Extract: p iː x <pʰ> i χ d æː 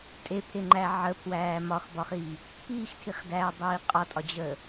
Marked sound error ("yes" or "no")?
yes